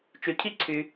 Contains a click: yes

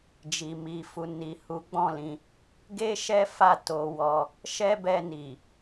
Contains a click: no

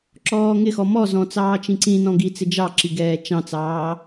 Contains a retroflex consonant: no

